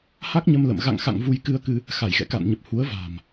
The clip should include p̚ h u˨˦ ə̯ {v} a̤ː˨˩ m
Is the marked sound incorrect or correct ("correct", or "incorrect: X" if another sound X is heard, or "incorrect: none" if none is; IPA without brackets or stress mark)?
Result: correct